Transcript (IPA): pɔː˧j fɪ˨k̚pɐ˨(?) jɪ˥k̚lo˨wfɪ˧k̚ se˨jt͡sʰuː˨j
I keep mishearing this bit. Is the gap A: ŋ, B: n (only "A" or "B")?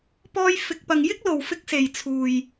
A